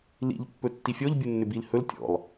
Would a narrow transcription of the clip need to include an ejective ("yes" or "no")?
no